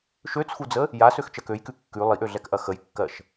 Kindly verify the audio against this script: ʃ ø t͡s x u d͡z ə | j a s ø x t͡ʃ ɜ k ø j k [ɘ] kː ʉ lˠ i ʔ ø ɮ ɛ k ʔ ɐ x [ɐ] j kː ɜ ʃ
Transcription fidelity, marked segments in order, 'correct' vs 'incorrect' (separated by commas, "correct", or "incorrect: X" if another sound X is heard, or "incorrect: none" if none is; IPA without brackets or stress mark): incorrect: ʉ, incorrect: ə